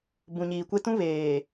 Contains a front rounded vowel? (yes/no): no